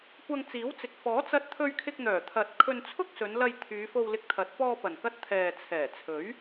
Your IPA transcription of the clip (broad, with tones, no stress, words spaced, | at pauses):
kʷɐ˧ŋt͡siː˨˥wt͡sɪ˨k̚ fɔː˨˥t͡sɐ˧t̚t̪ʰɵ˧ɥ kʰɪ˧k̚n̪œː˨˩t̪ʰɐ˨t̚ kʰɵ˧nt͡sʰʊ˥k̚ sɵ˨˧nlɐ˧j t̪ʰyː˨˧fo˧wlɪ˧k̚t̪ʰɐ˨˥t̚ pɔː˧pɐ˨˩nkɐ˧t̚ t̪ʰɛː˨t͡sʰɛː˨˩t͡sʰɵ˨˥ɥ